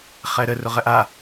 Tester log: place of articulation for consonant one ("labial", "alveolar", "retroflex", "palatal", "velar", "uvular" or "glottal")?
uvular